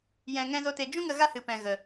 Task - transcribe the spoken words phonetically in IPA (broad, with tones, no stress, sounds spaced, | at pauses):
j ɛ̃˧ ŋ ɛ̃˦ z o˦ t e˧ d͡ʒ ũ˦ ŋ ə˧ ɣ a˦ h ɨ˨ p ɛ̃˨ ɣ ə˨